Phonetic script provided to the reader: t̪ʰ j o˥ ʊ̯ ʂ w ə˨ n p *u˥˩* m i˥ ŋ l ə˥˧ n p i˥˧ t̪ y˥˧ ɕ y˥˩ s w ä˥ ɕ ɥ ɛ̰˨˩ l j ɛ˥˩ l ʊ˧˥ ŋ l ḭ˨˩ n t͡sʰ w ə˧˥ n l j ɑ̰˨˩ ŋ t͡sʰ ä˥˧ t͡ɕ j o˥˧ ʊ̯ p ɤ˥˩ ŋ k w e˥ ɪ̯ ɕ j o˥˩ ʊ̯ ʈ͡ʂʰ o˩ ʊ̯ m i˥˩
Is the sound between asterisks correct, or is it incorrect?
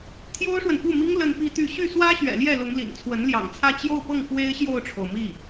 correct